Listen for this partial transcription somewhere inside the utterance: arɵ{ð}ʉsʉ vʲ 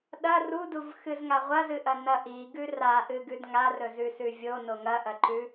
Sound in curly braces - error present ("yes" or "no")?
yes